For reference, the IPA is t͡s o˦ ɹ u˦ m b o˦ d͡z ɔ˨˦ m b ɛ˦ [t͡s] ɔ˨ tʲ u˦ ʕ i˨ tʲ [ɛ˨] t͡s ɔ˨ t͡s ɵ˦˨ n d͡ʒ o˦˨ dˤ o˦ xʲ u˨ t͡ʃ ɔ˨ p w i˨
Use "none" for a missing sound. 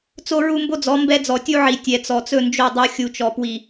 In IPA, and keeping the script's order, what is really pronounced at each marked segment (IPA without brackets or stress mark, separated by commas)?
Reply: d͡z, ɛ˨